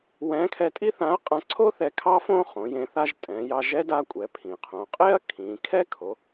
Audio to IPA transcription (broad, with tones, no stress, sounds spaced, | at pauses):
w ɛ̃˧˥ kʰ ɛ˧ tʼ i˥ θ ã˧˥ ɐ̯ qʼ ã˧ ǀʰ o˥ θ ɛ˧ kʰ ɑ˥ f õ˥ χ õ˩˧ j ẽ˧ θ a˧ ʒ tʼ ɛ̃˩˧ j ɑ˧ ʒ ɛ˧˥ d a˧ kʷʼ ɛ˩˧ pʰ ĩ˩ qʰ õ˩˧ qʼ e˥ ɐ̯ kʰ ĩ˩˧ kʰ ɛ˥ kʰ o˩˧